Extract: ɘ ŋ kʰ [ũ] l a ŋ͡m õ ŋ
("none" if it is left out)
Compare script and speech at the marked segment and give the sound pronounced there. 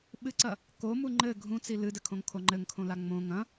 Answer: õ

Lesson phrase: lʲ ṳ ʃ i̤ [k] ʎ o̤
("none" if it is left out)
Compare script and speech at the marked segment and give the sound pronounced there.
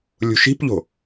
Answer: p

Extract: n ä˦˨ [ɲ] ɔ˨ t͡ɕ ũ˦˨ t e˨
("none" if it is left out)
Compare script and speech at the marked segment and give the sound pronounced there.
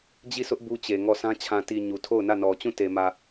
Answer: n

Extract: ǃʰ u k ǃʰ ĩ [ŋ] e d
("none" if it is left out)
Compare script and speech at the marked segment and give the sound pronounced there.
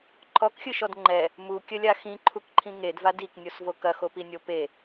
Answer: ŋ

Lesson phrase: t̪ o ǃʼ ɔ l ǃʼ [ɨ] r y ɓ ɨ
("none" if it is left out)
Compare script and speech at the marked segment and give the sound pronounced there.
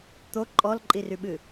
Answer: i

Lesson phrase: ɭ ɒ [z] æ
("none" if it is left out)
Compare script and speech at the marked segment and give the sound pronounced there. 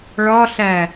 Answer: ɬ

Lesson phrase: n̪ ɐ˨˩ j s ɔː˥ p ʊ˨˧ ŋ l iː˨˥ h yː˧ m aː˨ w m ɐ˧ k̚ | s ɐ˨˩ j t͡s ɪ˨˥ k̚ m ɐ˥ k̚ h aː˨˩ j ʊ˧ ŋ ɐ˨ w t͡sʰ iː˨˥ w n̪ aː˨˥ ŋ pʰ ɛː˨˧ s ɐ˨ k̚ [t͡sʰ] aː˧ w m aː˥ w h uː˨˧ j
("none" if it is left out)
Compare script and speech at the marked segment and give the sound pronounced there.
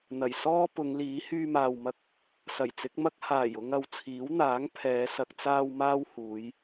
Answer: t͡s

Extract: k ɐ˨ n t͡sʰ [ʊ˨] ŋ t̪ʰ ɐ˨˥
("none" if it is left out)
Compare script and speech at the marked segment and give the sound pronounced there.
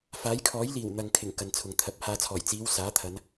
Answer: ʊ˨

